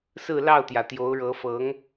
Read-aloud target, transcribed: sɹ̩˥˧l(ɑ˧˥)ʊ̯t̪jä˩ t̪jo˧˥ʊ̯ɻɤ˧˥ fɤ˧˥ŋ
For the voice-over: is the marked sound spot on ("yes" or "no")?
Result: no